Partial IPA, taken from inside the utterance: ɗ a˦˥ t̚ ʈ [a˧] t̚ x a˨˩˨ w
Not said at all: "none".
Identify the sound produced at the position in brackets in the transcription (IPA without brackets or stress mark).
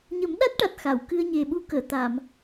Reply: a˨˩